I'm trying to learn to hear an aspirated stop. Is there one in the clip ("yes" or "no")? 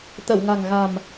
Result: no